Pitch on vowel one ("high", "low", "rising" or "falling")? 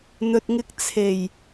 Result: low